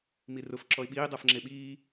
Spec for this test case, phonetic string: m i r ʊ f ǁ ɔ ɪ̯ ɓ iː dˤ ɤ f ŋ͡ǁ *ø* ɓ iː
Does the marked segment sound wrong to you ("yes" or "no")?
yes